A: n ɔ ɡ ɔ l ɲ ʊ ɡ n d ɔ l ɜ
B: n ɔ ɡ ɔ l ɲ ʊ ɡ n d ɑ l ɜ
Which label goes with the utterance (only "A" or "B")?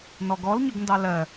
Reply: B